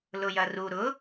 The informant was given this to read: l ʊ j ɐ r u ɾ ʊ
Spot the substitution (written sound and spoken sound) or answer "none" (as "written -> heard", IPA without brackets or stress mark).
none